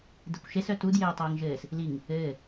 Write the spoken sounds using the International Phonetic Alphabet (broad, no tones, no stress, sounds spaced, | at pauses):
d e kʷ ʃ e s œ t u d j ɘː tˤ əː ŋ ʒ ɘː s | l i ŋ | ɘː